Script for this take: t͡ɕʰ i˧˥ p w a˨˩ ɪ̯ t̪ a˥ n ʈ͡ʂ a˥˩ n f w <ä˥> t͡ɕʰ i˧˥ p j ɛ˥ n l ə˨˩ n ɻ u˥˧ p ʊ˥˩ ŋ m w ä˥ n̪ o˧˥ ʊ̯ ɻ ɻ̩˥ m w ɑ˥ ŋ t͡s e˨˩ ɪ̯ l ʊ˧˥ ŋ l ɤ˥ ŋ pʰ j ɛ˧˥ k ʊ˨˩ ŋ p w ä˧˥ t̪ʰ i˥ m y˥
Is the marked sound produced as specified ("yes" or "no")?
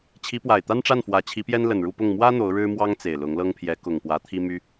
no